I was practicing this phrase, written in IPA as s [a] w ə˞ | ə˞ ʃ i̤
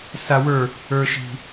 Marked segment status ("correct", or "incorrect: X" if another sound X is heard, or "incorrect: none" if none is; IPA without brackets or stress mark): correct